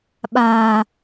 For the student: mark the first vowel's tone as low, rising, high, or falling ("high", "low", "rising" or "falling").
low